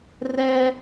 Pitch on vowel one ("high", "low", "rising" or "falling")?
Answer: high